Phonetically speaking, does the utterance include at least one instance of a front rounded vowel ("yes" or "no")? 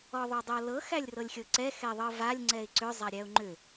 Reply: yes